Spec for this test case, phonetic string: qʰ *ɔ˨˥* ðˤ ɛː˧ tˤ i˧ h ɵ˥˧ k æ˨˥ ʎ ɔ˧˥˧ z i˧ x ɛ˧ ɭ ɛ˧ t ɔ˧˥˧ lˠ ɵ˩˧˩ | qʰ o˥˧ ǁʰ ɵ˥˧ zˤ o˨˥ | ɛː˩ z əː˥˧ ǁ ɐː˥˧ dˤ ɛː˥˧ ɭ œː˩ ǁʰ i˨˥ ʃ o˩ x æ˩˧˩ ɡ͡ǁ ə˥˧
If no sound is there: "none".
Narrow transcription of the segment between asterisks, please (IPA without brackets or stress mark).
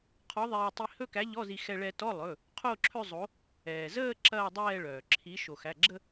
ɔ˨˥